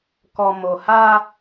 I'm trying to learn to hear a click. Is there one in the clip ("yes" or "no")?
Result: no